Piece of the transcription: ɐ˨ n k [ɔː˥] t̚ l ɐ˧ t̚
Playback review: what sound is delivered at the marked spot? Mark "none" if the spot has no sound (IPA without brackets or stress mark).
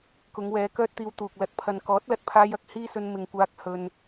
ɔː˨˥